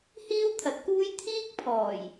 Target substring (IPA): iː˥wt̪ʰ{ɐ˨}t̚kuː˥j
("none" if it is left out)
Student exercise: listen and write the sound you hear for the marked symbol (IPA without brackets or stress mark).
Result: ɐ˨˥